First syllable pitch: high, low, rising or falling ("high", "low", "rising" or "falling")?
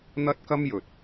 high